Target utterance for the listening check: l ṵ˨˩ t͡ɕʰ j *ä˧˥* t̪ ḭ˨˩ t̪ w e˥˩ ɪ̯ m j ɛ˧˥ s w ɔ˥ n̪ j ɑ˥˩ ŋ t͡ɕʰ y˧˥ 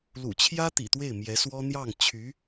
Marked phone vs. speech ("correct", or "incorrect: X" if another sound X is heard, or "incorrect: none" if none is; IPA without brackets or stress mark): incorrect: ä˥